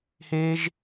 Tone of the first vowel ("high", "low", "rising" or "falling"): high